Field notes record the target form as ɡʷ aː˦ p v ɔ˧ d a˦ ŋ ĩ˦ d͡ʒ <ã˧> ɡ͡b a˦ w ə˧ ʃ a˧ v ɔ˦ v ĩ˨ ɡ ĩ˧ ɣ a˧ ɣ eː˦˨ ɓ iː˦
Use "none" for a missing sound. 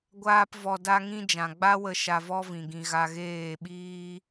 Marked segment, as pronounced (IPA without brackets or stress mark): ã˨